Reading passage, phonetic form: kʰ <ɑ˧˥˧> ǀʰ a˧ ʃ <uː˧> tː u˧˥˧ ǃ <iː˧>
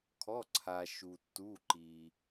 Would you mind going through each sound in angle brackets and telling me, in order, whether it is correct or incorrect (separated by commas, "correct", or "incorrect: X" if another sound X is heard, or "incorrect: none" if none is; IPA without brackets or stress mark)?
incorrect: ɔ˧˥˧, incorrect: u˧, correct